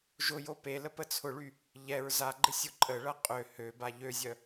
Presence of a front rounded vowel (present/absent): present